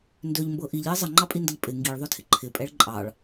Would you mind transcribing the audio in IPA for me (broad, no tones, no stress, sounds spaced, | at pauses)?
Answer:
n d ø ʎ m b ɤ ʔ i ʎ j ə zˤ ə ŋ͡ǃ ɑ pʼ i n d ə ʎ pʼ ɪ ŋ ɡ i ɭ ðˤ ø tʰ ɪ ǃʰ ɪ pʼ ɛ ɭ ǃʼ ɑ ɭ